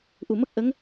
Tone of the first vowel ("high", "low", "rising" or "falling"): low